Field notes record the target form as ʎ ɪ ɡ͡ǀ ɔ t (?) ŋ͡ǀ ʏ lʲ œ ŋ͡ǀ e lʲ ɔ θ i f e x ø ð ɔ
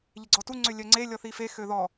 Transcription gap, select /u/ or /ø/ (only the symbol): u